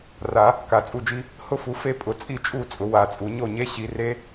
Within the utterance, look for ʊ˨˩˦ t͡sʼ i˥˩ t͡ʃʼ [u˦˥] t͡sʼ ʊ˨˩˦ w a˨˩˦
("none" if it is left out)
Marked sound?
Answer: u˥˩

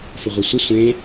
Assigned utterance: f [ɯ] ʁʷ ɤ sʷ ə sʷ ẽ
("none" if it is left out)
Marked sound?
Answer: ə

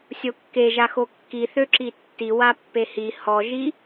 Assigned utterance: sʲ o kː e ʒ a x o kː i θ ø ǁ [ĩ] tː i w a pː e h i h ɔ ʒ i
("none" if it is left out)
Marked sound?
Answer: i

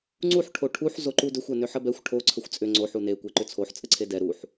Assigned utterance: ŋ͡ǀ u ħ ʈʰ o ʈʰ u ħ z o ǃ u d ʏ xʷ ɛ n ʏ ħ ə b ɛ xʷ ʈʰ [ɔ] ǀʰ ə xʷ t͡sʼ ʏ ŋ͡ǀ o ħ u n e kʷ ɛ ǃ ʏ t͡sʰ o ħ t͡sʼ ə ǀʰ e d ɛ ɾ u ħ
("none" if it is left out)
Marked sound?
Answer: o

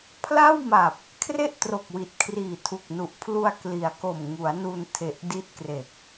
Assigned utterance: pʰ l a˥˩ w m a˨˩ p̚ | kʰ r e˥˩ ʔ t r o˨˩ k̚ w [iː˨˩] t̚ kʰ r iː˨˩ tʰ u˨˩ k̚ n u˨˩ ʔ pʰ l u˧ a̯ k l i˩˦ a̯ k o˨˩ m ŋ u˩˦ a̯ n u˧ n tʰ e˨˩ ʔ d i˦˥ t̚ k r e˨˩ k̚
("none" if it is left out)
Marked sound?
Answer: i˨˩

